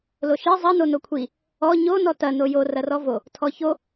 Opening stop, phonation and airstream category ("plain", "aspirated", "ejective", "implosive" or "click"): aspirated